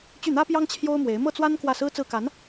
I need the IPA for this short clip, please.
t͡ɕy˥˩n̪ä˥pjɑ˥ŋ t͡ɕʰjo˥ʊ̯mwe˧˥ɪ̯ mɤ˥˩t͡swa˥n kwä˥˩sɹ̩˥ t͡sɹ̩˥˩ka˧˥n

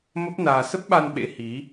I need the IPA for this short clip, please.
mə˦˥p̚naː˧ sə˦˥p̚ɓa˧nɓḛ˧˥ hi˨˦

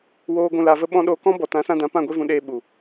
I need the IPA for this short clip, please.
woː˧ ɡʷũ˧la˧və˦ ɓɔ̃˧ ɗoː˧kɔ̃˦bɔ˨ tã˨˦sã˧dã˨˦ pã˦˨ɡʷe˦vũ˨˦ ɗeː˧ɓu˨

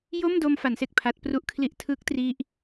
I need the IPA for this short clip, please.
jo˥˩m do˧mfa˩˦nse˨˩k̚ pʰa˦˥t̚pru˥˩ʔ kʰli˦˥ʔtʰɯ˦˥k̚tri˦˥ʔ

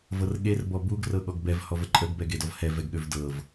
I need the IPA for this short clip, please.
vɤrɠer bɔbuɡ rɤɠɔɡbɛv hɔvəǃʼəɡ bɛɡedɔvhɛ vɛɡɠøvdɤv

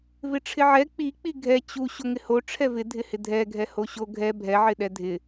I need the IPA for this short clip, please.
vɪʈ͡ʂʰɪʕɛ k͡pi k͡piɡʱɛ t͡ɕu ɕoŋɪho ʈ͡ʂʰɛvɪ dʱɪhɪdʱɛ ɡʱɛhoɕo ɡʱɛ bʱɛ ʕɪɗɛdʱɪ

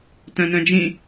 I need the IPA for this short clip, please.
tœ̃nœ̃d͡ʒĩ

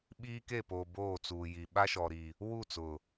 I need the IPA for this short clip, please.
ɓiː˦ke˦˨poː˨ boː˦˨t͡suː˨ji˨ ɓa˦ʃɔ˨ɾi˨ | wu˦˨t͡sʊ˨

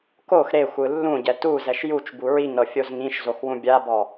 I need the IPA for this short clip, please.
kox ɾexʷɯ lːũɟɛ tuzɛʃ jut͡ʃ buɹiŋɾɤ fʲozŋĩʃzox wũbʲabɔ

